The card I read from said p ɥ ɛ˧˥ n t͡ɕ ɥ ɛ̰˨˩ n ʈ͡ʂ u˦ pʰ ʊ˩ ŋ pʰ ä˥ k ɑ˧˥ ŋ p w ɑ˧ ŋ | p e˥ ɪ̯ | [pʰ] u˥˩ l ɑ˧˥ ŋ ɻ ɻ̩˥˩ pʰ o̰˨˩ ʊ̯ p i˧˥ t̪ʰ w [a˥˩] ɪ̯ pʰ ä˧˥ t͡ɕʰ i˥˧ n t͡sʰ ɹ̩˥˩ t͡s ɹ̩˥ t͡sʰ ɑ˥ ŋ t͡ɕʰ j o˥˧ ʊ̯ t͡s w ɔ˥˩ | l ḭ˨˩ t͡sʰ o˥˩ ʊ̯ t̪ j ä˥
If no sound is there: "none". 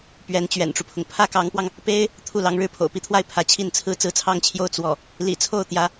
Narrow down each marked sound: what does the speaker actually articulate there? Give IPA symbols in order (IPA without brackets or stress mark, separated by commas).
t̪ʰ, a˥˩